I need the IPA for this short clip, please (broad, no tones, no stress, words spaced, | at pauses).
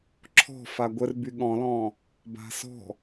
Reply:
ǁʰɔ̤fa ɡʷərby ɠɔ̃lɔ̃ː | ba̤sɔ̤